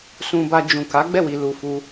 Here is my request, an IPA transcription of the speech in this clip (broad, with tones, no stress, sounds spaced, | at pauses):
s ũ˧ b a˧ d͡ʒ ũ˨ k a˨˦ ɡ͡b ɛ˦˨ w i˨ l u˨ f u˧